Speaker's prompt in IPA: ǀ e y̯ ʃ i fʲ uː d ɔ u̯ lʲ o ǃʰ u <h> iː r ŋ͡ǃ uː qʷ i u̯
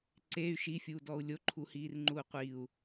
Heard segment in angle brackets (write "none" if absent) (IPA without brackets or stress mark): h